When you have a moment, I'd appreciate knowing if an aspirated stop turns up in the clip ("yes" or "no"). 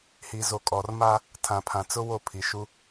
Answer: yes